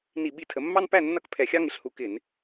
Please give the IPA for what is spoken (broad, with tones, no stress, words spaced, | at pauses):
ni˧˩˧ɓi˧˩˧tʰə˩˧mːɑ˦n pæ˥˩nːʌ˥˩k pʰɛ˧˩˧xʲɑ˦ŋɪ˩˧ɬhu˧˩˧ kɪ˧˩˧n